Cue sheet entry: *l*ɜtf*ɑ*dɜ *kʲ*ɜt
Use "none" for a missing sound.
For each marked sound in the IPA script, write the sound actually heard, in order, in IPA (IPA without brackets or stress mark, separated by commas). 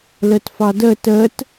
l, ɑ, t